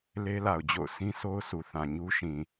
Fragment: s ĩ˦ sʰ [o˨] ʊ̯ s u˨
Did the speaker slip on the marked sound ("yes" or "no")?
yes